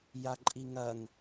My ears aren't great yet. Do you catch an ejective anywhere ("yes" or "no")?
yes